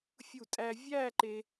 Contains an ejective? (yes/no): yes